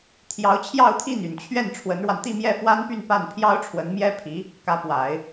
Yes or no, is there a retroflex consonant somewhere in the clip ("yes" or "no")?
yes